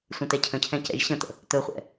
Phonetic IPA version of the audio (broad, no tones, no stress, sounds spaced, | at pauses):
sʷ ə̃ t ɛ cʰ ə̃ cʰ ɛ̃ c ɛ̰ ʒ ɕ ə̃ t̪ ə̰ | t̪ ɵ χʷ ɛ̰